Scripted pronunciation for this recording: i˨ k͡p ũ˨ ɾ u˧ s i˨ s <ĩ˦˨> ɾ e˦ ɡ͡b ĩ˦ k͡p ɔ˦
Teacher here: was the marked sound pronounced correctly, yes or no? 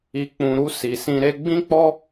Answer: no